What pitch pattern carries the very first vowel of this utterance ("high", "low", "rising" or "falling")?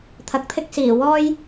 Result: rising